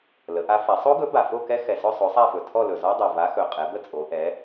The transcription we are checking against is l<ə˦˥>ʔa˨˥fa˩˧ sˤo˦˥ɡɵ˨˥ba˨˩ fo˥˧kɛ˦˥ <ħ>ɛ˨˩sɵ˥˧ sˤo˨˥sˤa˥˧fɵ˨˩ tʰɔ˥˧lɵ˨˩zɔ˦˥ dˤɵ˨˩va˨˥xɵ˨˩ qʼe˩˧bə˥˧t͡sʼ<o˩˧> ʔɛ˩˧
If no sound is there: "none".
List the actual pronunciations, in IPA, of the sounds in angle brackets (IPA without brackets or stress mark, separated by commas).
ə˩˧, x, o˩˧